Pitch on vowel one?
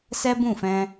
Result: high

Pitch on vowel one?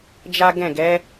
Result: high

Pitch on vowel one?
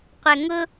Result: high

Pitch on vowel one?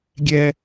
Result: high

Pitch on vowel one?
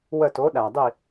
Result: falling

